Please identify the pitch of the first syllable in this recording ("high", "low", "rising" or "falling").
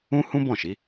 high